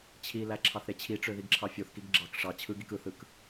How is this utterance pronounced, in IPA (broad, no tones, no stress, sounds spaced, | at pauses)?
t͡ɕʰ i l æ ǁʰ ɑ θ ɾ e t͡ɕʰ i ʈ͡ʂ ø ð i ɡ ǁʰ ɑ fʲ o θ k i ɡ ɡ͡ǁ ɑ k ʂ ɑ t͡ɕʰ ɯ ɡ i k ɯ θ ɯ k